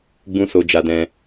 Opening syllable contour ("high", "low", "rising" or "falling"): high